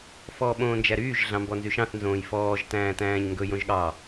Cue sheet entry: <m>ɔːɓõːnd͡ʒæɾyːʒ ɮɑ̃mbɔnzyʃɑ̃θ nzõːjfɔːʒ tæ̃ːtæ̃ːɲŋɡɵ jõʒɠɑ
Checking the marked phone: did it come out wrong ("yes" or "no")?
yes